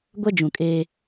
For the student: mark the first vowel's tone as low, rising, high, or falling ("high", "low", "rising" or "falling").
high